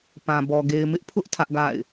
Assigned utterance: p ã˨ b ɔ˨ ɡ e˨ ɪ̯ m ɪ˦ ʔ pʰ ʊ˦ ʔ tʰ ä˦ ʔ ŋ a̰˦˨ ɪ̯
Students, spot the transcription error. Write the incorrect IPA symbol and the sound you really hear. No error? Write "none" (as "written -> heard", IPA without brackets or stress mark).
ŋ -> ɡ